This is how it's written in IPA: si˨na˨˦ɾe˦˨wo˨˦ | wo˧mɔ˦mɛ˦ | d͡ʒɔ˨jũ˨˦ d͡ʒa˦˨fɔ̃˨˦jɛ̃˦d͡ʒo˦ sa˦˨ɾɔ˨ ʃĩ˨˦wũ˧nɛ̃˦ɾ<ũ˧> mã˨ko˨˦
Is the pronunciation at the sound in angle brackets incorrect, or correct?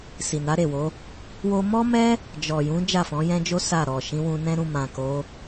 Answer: correct